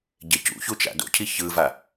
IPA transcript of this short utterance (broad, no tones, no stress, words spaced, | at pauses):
ɟecṵçu t͡ʃa̰do̰cʰi çɯva